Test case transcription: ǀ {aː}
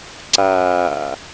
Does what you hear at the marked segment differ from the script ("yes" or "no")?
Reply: no